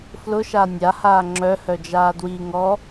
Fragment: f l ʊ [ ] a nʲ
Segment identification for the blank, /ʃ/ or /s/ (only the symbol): ʃ